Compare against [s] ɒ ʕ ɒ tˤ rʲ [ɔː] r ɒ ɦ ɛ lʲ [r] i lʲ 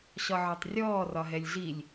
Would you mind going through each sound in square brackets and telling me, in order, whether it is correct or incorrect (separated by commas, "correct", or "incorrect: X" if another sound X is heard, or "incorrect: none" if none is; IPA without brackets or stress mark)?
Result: incorrect: ɕ, correct, incorrect: ɮ